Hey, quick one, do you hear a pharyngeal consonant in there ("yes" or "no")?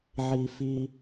yes